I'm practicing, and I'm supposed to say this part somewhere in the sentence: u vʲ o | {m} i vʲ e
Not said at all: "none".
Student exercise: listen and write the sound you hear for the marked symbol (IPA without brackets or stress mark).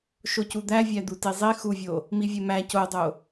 m